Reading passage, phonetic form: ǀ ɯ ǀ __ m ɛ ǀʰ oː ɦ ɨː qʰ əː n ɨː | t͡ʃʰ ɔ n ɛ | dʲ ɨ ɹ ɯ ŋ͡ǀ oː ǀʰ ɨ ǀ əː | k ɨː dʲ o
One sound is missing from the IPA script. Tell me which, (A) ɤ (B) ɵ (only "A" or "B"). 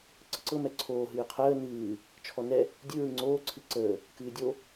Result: A